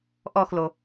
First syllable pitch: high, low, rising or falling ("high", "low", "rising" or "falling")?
falling